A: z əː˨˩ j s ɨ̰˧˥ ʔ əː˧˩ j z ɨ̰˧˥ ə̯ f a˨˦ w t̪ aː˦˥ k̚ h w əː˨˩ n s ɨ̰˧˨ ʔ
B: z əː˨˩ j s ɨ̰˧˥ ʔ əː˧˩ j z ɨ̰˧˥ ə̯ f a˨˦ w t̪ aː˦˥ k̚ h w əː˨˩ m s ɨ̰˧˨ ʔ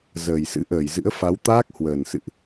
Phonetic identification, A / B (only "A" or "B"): A